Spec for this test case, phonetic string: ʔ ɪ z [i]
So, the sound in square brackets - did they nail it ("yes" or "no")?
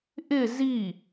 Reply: yes